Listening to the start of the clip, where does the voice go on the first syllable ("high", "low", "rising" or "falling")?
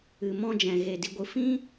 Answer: low